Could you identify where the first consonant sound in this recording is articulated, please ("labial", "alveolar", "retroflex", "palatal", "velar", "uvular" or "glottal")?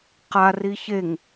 uvular